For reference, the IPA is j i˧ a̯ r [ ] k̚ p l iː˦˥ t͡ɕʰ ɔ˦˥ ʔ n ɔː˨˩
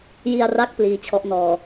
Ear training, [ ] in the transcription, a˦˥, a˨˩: a˦˥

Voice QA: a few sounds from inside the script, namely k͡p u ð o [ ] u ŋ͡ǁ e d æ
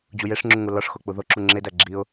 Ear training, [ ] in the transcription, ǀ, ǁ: ǁ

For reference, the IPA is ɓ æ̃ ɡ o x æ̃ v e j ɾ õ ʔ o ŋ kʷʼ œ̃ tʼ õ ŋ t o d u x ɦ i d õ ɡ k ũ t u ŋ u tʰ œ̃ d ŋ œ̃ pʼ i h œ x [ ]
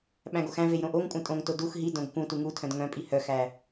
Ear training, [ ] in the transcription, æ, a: æ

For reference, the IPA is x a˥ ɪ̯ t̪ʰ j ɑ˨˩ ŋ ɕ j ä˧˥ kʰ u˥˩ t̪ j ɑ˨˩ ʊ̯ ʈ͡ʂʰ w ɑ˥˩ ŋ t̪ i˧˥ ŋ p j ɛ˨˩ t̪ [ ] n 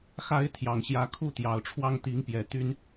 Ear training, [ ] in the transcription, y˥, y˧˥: y˥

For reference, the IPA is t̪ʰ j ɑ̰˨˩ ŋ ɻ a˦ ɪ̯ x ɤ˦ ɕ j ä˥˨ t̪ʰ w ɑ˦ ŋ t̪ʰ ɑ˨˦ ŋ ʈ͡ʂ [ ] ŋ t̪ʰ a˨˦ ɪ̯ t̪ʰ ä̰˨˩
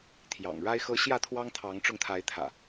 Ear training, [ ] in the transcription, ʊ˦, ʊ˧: ʊ˧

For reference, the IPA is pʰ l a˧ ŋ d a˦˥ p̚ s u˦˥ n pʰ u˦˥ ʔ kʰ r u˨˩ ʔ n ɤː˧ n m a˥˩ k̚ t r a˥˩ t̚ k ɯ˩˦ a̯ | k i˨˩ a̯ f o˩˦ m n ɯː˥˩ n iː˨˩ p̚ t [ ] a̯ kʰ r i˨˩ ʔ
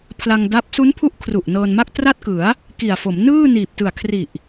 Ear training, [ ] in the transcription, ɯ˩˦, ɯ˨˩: ɯ˨˩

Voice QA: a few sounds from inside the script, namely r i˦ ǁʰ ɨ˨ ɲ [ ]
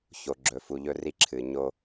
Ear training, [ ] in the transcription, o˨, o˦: o˦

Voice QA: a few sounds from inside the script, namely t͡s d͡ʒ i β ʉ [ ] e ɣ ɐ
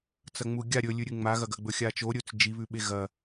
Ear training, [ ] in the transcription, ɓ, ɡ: ɓ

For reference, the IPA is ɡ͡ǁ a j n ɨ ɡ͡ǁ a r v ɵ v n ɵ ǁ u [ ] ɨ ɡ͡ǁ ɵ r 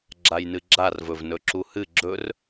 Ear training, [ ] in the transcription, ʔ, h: h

